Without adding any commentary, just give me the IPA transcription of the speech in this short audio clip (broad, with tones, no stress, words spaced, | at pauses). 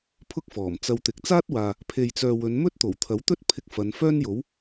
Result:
pʰʊ˥k̚fɔː˨˩mt͡sɐ˧wt̪ɪ˨k̚ t͡saː˥t̚waː˨ | pʰe˨jt͡sœː˨ wɵ˨˧nmɵ˥t̚ t̪o˨˩wt̪ʰɐ˨˥wt̪ɵ˥t̚pʰɪ˧k̚ fɐ˨˧n fœː˥njo˨˥w